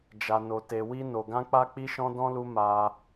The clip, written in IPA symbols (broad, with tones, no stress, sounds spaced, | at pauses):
d͡ʒ a˧ n o˧ t e˧ w i˦ n o˧ ɡ ã˦ k͡p a˦ k͡p i˦ ʃ ɔ̃˦ d ɔ̃˦ l u˦ m a˦